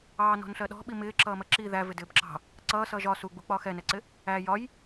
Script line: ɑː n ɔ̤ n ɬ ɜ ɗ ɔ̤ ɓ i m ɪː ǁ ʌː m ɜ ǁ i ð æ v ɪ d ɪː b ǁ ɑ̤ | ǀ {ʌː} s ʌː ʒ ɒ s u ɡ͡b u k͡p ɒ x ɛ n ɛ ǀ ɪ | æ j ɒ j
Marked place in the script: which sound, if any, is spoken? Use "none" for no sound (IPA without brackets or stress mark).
ʌː